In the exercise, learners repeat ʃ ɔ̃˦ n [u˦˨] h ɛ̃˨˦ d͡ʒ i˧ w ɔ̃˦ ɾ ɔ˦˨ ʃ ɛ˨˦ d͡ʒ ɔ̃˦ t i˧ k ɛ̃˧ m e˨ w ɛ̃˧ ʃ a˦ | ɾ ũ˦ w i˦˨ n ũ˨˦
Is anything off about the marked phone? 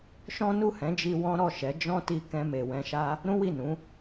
no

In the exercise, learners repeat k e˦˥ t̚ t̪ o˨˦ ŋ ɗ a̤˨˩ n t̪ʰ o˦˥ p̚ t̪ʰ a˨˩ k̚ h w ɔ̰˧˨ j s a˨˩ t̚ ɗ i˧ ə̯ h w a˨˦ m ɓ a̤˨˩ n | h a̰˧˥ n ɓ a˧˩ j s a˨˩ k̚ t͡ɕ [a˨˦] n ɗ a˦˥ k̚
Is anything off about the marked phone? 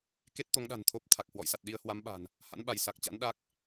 yes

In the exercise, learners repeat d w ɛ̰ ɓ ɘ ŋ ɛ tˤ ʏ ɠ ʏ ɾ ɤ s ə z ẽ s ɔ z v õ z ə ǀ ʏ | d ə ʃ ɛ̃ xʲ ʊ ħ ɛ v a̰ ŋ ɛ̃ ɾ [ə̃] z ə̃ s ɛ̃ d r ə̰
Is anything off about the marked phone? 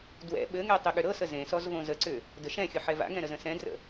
yes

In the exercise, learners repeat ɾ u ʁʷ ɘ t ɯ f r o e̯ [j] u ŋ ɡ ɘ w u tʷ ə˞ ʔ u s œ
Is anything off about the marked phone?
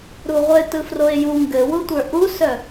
no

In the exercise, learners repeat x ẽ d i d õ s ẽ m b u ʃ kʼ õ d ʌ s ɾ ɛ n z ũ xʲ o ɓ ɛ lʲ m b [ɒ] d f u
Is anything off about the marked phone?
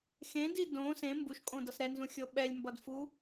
yes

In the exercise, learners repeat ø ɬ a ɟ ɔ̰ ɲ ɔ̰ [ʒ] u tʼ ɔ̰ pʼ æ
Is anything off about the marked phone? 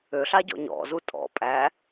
yes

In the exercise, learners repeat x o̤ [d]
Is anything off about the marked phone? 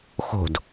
no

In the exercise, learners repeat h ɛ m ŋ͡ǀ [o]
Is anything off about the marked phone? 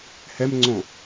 yes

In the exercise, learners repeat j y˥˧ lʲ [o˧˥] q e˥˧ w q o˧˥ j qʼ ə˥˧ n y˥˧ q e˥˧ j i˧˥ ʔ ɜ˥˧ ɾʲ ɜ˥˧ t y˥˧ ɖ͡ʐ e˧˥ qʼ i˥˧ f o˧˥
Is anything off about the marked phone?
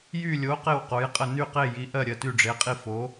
no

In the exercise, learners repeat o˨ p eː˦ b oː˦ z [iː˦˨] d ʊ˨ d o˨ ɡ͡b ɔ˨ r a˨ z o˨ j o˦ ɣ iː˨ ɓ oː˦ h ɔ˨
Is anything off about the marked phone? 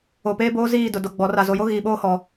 no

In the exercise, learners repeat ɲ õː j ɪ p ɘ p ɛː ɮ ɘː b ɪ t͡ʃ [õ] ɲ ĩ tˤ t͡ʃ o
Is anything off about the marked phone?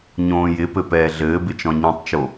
yes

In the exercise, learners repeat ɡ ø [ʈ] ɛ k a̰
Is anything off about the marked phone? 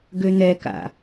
yes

